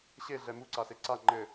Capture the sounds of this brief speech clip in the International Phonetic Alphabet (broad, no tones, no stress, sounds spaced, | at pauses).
ɕ e ɮ ɛ m u ǀ a s e ǀ a ŋ͡ǃ ɘ